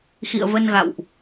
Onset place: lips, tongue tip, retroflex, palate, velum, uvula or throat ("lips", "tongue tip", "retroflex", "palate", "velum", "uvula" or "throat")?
velum